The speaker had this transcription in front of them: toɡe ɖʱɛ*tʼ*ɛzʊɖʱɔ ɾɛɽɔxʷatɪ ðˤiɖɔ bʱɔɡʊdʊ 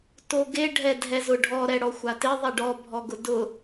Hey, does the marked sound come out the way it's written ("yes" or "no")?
no